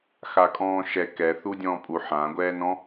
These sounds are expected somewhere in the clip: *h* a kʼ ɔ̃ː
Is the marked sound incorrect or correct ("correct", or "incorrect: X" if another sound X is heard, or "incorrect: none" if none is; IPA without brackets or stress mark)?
incorrect: x